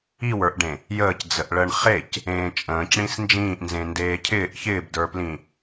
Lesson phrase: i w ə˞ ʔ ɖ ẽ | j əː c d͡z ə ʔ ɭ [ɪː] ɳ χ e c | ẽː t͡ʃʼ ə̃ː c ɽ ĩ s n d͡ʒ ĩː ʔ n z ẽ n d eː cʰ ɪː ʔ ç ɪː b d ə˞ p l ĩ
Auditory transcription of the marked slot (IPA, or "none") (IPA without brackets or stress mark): əː